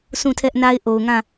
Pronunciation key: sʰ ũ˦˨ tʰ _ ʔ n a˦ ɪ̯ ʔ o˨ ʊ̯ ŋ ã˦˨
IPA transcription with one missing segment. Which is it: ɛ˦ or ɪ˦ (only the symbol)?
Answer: ɛ˦